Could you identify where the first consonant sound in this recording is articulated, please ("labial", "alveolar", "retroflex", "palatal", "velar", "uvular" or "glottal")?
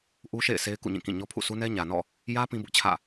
glottal